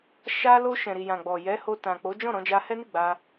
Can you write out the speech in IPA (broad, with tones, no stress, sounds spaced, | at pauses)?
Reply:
ʃ a˧ l o˧ ʃ ɛ̃˨ ɾ i˨ j ã˨ ɡ͡b ɔ˨ j ɛ˨˦ h o˧ t ã˨ k͡p o˨˦ d͡ʒ ɔ̃˦˨ ɾ ɔ̃˧ d͡ʒ a˧ h ɛ˦ n i˦˨ ɡ͡b a˧